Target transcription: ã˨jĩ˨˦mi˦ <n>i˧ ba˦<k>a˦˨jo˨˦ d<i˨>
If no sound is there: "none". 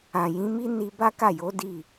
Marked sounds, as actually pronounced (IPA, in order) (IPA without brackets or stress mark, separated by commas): n, k, i˦˨